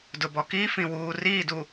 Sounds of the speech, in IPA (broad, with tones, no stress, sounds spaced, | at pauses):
d ʊ˨ b ɔ˨ k iː˦ f ĩ˨ w uː˨ r iː˦˨ d u˨